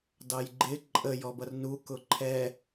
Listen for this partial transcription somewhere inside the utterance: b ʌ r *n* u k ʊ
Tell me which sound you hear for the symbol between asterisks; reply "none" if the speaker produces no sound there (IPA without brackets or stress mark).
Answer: n